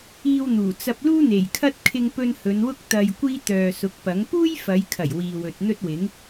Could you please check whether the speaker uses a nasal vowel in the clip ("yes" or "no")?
no